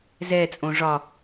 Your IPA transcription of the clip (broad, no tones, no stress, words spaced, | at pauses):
zɛt͡sʼõ ʐɒ